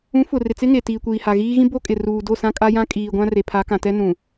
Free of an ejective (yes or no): no